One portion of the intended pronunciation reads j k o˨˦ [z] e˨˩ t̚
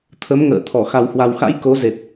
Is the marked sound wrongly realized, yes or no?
no